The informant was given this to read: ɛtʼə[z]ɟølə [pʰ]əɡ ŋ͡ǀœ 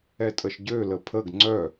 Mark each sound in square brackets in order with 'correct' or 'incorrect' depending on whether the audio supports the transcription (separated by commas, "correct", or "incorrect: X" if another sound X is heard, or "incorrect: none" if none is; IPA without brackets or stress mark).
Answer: incorrect: ʃ, correct